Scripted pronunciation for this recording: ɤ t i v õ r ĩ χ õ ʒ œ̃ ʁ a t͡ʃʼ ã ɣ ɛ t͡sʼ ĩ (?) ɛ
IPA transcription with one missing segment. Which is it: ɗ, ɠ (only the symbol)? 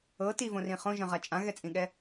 ɠ